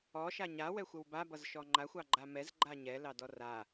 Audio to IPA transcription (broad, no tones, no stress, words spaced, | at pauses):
ɔ ʃaɲa wɛxʷəwba bʌzʃɔŋ͡ǃa xʷɑɡ͡ǃamɛz ɡ͡ǃaɲɛ lɑdɔra